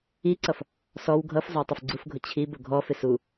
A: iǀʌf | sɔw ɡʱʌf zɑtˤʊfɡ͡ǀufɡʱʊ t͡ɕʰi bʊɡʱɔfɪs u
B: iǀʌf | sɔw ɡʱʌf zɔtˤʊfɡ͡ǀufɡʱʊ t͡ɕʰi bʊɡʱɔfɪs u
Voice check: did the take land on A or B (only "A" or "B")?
A